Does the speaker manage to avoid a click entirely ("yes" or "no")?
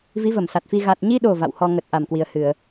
yes